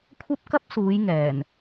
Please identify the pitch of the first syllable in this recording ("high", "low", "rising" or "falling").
high